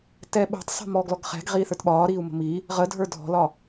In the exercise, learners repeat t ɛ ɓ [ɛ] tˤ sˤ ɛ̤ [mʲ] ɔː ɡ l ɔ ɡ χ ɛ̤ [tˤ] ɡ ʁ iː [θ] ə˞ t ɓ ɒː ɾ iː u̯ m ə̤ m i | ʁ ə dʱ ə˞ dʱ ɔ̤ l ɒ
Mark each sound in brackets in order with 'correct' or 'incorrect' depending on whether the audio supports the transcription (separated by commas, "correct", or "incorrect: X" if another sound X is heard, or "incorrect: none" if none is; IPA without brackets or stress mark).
incorrect: ɛ̤, incorrect: m, incorrect: none, correct